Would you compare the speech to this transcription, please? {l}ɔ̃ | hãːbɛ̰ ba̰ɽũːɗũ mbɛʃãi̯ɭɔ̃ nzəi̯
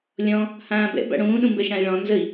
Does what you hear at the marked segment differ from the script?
yes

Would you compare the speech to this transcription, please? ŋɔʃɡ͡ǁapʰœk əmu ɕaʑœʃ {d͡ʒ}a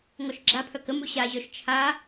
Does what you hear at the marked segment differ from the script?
yes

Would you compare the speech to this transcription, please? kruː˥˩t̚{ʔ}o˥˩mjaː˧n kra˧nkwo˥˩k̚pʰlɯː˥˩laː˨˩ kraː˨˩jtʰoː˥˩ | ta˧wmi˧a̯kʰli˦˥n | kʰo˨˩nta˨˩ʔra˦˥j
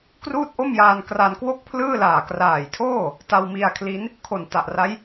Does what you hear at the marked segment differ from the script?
no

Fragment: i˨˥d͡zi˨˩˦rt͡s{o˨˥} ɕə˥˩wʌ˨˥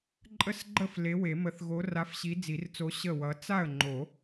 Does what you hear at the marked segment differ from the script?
no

